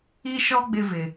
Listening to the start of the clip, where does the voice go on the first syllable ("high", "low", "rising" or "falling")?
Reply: high